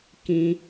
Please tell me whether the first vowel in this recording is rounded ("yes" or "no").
no